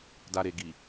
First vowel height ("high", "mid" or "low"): low